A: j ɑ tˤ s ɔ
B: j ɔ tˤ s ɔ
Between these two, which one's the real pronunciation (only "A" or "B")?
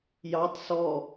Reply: A